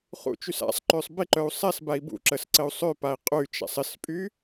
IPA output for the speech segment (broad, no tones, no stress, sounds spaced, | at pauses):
χ ṵ t͡ʃ y s a̰ sˤ ǃ ø sˤ b ɪ ǃ œ u̯ sˤ ɛ s b a i̯ b ṵ ǁ ə s ǀ ə u̯ sˤ ø p a i̯ qʼ y t͡ʃ a̰ sˤ ɪ s pʼ y